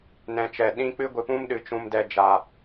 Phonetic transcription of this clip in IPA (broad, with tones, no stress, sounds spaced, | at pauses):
n ɛ̃˨ t͡ʃ ɛ˨ ɗ ĩ˧ k͡p ɨ˧ ɡʷ ɨ˨ p ũ˧ m ɗ ɨ˨ t͡ʃ ũ˨ m d ɛ˨ d͡ʒ a˨